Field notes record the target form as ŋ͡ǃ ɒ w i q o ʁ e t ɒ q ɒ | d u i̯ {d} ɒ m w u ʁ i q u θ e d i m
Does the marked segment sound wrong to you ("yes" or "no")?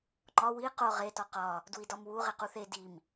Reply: no